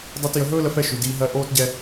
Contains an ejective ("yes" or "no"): no